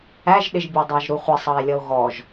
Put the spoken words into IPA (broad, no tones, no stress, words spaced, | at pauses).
æʒɗɪʒ bʲɑdˤɑʒɾuχʷɪ sˤɑe̯lʲʌo̯ɣɔʒ